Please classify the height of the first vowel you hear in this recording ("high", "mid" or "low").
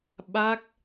low